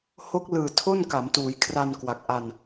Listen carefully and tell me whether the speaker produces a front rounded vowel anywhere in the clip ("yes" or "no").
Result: no